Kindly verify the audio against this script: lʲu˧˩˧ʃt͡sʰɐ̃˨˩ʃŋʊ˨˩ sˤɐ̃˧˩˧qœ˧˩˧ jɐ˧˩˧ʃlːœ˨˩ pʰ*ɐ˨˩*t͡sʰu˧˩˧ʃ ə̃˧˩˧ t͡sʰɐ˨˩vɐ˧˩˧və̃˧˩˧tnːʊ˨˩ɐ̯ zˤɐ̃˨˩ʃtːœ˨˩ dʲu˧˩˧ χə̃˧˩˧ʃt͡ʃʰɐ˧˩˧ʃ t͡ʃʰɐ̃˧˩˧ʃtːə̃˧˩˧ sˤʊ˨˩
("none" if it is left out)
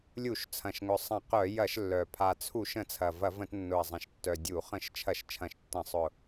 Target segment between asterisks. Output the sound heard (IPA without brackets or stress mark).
a˨˩